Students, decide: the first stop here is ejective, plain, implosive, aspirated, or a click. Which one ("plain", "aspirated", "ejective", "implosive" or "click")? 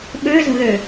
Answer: implosive